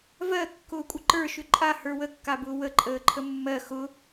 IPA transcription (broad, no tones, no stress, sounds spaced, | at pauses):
v ɜ kː ʊː kʷʼ ə ǃ ə˞ ʃ ʏ ǃʼ a h ə˞ w ə kː a b ʊː w ə ǃʼ əː ǃʰ ə mː ɜ x ʊ